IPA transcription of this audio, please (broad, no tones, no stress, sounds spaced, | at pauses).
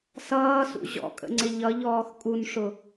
s ʌː s ṵ ʑ ɔ̰ kʼ ə̰ ŋ͡ǀ ɪ ʎ ʌ ʎ ɔː x kʼ u n ʂ ʊ